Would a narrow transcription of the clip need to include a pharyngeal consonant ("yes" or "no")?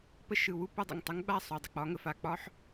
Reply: yes